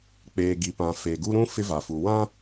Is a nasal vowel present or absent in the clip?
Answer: present